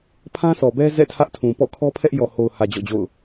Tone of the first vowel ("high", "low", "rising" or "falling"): high